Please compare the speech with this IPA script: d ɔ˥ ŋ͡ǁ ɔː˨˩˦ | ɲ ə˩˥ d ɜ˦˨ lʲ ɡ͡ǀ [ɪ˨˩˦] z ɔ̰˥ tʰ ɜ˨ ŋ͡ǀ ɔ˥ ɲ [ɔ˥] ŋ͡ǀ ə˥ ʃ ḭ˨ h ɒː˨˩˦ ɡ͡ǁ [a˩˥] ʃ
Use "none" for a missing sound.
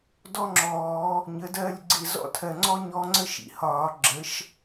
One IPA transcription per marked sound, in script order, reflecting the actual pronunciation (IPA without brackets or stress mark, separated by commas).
ɪ˦˨, ɔ˧˥, ə˩˥